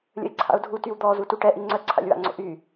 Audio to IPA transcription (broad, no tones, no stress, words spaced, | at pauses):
lʲə̰ɪ̯ǀʰa̰ʊ̯dʱu tywd̪ɔ zutuʈɛ ʔiŋ͡ǀœ ǀʰa̰lʲwa̰ŋ͡ǀo̰ʔy